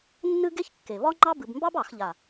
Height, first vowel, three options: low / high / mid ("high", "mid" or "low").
high